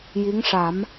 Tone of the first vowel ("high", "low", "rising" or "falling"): rising